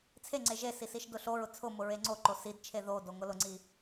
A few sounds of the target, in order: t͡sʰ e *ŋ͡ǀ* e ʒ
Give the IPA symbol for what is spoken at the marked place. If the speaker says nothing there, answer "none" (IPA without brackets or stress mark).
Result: ŋ͡ǀ